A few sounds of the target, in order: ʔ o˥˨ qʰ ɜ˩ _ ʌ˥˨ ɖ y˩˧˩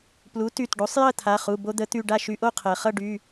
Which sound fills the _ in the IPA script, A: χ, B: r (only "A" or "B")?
A